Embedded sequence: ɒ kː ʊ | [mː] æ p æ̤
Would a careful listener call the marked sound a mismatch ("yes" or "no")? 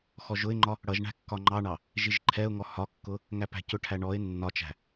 yes